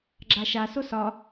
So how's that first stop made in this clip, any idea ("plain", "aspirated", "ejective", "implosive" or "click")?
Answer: click